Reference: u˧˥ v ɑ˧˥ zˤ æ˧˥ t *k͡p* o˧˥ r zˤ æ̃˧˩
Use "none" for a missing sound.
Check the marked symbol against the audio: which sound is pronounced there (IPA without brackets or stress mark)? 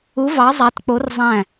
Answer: k͡p